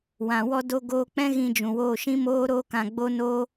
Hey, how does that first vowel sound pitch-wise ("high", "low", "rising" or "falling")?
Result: low